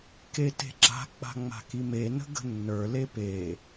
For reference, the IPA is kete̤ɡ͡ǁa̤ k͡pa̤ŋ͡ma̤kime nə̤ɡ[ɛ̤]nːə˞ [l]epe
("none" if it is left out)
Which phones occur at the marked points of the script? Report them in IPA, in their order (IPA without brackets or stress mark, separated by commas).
ə̤, l